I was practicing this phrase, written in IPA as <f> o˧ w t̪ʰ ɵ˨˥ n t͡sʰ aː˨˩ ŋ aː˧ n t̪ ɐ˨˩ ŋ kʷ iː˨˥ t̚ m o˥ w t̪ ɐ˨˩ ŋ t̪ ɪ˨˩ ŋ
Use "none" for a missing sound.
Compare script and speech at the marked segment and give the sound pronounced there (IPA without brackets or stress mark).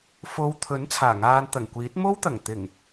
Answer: f